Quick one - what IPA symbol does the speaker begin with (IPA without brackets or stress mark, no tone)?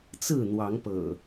t͡s